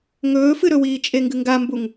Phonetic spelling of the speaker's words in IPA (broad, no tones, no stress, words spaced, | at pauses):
ŋɵːfɨɾɵwiː t͡ʃʼeŋɡɨŋɡambuŋ